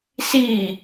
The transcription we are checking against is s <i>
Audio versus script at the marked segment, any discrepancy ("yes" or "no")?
no